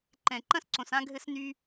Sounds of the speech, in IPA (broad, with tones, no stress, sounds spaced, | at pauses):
ǃ ɛ̃˨ ǃ ɐ̃˦ s ǀ õ˨ s ã˦ ɡʱ ɘ˦ s n y˦